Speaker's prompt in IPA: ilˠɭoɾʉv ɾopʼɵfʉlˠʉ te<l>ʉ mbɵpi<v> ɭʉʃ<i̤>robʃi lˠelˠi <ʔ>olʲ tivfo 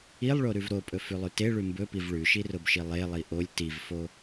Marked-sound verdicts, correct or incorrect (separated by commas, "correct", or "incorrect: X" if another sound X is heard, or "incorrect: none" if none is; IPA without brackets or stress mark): incorrect: ɭ, correct, incorrect: i, correct